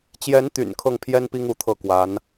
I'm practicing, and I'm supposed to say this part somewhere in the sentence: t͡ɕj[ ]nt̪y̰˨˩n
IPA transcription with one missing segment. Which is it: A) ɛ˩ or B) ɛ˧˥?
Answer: B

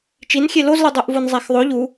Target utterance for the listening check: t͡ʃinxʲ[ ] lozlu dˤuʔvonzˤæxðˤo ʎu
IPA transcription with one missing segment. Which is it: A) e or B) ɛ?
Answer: A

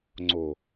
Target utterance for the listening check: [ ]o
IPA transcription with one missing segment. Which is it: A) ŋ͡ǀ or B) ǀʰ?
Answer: A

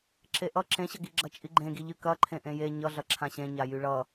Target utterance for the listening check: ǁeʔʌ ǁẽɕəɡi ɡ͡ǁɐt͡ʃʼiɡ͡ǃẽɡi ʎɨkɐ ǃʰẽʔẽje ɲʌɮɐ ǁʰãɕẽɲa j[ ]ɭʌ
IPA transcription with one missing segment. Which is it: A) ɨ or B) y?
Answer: B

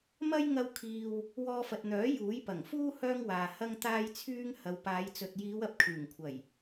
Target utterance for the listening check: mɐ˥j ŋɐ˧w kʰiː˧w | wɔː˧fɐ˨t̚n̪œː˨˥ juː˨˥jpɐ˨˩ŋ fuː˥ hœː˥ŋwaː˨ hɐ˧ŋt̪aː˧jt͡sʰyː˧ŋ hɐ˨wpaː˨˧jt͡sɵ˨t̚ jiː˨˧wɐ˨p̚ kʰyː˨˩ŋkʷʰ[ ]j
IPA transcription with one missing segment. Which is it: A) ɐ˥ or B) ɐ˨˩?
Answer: B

